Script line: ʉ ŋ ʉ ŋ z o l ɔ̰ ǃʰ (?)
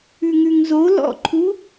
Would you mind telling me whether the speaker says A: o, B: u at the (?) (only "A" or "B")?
B